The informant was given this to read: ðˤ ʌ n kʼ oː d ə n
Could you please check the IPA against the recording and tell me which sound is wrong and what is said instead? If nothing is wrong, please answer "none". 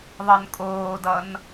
ə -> ʌ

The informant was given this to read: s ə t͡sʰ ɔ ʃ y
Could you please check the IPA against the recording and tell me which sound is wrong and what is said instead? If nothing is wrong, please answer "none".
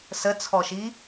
y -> i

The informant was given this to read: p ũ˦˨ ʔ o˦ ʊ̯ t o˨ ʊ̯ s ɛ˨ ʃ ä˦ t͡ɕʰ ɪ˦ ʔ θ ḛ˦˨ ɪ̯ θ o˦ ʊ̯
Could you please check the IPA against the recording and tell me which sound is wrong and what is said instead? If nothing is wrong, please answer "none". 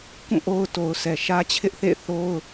p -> k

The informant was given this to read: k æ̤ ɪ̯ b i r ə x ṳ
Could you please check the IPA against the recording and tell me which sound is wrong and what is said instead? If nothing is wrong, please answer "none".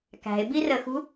none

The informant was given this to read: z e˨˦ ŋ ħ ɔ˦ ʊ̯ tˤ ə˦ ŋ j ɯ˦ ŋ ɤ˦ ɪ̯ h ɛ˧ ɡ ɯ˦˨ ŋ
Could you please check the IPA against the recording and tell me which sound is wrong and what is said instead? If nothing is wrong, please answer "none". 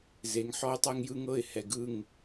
ə˦ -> ɛ˦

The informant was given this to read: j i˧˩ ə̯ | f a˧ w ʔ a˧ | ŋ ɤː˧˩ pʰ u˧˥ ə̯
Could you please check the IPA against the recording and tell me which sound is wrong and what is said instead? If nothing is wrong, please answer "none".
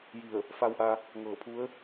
none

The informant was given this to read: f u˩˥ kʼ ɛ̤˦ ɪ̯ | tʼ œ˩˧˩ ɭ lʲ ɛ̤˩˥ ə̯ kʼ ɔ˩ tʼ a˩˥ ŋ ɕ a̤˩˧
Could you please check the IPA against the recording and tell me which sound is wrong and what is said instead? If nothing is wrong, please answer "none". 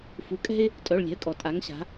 none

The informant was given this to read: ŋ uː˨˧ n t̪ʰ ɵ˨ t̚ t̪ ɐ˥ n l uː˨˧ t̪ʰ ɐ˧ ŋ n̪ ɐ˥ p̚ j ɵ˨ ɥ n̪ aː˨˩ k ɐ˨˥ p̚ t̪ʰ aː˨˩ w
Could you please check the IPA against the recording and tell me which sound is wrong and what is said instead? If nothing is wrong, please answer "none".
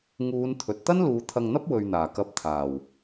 j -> w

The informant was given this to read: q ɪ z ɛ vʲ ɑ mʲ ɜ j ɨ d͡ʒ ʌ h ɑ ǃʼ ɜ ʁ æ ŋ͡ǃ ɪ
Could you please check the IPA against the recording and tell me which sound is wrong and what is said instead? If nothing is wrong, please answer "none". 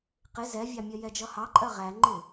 ɨ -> ɛ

